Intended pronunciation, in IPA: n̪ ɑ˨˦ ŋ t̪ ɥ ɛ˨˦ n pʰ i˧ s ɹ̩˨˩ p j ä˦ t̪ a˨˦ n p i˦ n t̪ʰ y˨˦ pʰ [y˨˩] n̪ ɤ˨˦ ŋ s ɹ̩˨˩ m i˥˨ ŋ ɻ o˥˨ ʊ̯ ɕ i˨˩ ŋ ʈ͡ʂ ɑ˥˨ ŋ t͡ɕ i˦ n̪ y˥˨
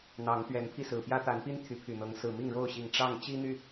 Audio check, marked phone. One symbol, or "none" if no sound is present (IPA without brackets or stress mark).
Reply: y˨˩